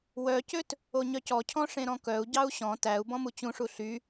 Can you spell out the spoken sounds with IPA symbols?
w œ c ø t | o ɲ œ c ɔ cʰ ɔ̃ ʂ ẽ ɾ ɔ̃ k œ u̯ ɟ ɑ u̯ ɕ ɔ̃ t æ u̯ b ɔ̃ m u t͡ɕ ũ ʂ u ɬ y

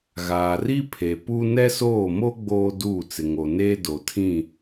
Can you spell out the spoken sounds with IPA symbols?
ɣ aː˨ r i˦ pʰ e˨ p u˦ n ɛ˦ s oː˦˨ m o˦ ɡ͡b oː˦ d uː˦˨ t͡s ɪ˨ ŋ o˨ n eː˦ d o˨ tʰ ĩ˦˨

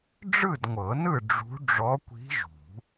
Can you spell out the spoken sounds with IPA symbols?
ɖ͡ʐ ɯ˥˨ d ŋʷ ɤ˨˩˦ n ɯ˥˨ ɖ͡ʐ ṳ˧˥ ɖ͡ʐ ɔ˧˥ kʷ i̤˧˥ ʒ ṳ˨˩˦

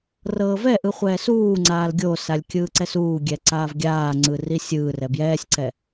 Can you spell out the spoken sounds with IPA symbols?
r ɤː v ɛ ʔ ɯ χʷ ɛː s uː ŋ͡ǀ aː l ɡʲ o s a lʲ kʲ ɯː ǀ ɛ s uː ɡʲ ɛ ǀ aː v ɡʲ aː ŋ͡ǀ ɯ r i sʲ ɯː r ɛ b j ɛː sʲ ǀ ɛ

